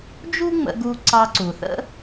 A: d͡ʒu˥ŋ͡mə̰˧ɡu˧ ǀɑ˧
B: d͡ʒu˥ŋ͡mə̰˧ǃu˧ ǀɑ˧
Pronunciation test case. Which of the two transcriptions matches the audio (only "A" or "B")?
A